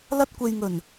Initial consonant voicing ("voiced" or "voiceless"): voiced